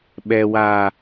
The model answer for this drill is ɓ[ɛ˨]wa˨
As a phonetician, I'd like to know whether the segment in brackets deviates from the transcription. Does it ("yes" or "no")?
no